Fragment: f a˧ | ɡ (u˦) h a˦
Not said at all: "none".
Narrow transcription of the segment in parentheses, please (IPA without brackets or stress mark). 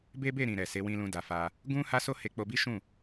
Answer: ũ˦